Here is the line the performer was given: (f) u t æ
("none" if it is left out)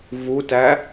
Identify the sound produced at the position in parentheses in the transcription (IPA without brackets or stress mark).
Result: v